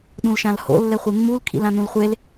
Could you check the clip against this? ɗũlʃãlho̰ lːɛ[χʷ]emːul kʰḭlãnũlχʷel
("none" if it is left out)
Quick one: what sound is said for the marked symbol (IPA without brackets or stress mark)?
χʷ